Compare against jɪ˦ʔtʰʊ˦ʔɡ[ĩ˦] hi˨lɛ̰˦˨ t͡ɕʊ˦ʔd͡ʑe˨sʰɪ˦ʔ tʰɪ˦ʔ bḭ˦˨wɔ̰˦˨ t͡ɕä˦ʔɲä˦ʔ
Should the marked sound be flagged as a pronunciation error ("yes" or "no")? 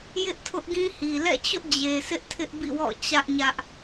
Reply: no